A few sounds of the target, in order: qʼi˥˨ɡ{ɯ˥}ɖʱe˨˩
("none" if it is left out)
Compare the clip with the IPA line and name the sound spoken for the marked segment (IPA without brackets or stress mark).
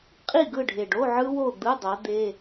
ɯ˥˨